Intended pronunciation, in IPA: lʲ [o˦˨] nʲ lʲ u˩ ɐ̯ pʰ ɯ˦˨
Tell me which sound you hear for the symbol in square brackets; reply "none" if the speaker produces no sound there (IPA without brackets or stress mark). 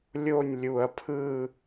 o˦˨